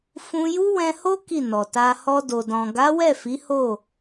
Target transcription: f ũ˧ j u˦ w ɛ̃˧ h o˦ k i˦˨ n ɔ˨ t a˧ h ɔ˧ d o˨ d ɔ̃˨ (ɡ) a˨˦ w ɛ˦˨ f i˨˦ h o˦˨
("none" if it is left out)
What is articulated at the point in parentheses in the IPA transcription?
ɡ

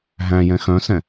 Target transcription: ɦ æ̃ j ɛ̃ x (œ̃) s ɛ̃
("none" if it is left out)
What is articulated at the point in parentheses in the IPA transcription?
œ̃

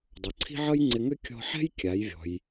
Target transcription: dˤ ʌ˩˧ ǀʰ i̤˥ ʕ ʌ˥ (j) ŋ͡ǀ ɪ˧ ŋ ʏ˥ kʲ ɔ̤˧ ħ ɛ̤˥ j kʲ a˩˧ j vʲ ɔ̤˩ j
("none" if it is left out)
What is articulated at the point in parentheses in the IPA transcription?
j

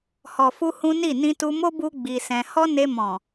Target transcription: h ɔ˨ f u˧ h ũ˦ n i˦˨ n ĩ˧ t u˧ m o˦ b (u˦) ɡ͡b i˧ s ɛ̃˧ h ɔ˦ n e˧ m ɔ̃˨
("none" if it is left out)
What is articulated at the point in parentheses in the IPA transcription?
u˦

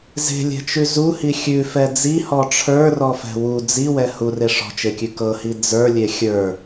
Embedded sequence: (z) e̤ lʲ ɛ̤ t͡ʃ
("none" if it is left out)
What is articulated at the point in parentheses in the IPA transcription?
z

